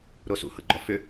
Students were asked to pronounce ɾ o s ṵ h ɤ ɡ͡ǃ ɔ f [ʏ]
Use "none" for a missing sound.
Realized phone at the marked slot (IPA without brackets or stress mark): ʏ